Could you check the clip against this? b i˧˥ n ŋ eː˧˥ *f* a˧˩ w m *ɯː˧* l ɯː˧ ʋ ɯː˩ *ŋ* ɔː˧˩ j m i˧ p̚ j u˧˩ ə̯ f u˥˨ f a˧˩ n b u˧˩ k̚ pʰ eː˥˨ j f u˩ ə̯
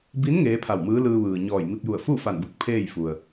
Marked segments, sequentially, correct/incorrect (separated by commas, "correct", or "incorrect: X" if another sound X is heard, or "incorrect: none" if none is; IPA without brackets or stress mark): incorrect: pʰ, incorrect: ɯː˧˥, incorrect: ɲ